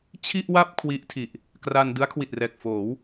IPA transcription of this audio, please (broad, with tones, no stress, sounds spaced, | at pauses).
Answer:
t͡ɕʰ i˥˩ ʔ w a˥˩ p̚ kʰ w i˦˥ ʔ tʰ i˨˩ ʔ | k r a˧ n d ɯ˦˥ a̯ kʰ w i˨˩ t̚ r ɛː˨˩ k̚ f oː˩˦ w